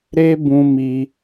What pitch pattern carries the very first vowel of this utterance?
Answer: high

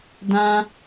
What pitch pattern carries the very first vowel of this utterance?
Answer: high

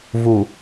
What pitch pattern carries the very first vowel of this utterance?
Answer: low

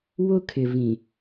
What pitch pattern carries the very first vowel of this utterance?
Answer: high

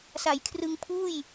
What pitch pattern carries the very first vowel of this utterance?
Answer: low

